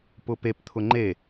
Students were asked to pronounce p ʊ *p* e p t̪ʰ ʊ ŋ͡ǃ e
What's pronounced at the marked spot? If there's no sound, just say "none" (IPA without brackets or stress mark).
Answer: p